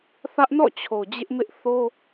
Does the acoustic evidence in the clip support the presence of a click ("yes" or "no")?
no